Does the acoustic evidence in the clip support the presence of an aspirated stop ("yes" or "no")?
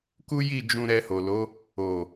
no